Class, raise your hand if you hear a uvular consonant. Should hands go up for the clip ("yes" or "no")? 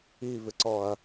no